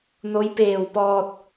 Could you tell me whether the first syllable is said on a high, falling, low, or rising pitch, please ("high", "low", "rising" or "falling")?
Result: rising